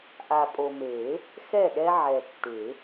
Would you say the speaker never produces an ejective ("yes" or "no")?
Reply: no